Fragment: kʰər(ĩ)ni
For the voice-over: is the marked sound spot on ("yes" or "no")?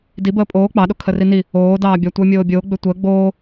no